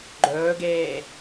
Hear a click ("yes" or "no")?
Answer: yes